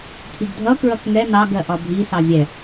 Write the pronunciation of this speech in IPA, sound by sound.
tʰ i ɡ dʱ ʌ k ɹ ʌ k ŋ ɛ n ɑ ɡ ɜ ʔ ɒ bʱ i s ɑ vʲ ɛ

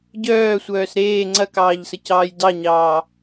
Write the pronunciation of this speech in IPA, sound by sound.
ɟ œː sʷ œː s ɾ eː ŋ͡ǀ ɐ k ɑː ʎ s ə c ɑː j d ɑ ɲ ɑː

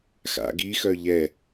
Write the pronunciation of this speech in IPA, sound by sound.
x a̰ ɡ i x œ ʎ ɛ

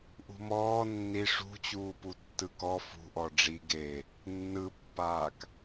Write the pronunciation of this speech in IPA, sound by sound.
ʔ ṳ m ɔː nː i ʂ ṳ t͡ɕ uː p u tː ɯ k ɔ f ṳ ʔ ɔ ɖ͡ʐ i ɡ e | nː ɯ pː aː k

